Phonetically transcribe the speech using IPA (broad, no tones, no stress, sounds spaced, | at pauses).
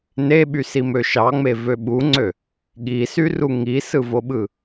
n e ɓ y s i m ø ʃ ɑ ŋ͡m e v ø ɓ u ŋ͡ǀ ø | ɠ i s y r u ŋ i s ɯ v o ɓ ɯ